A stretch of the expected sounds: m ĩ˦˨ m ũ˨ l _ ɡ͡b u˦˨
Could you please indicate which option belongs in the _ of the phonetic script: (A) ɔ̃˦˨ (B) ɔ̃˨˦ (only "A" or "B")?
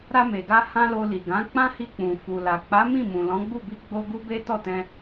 B